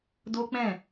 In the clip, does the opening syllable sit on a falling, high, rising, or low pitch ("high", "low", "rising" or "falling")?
high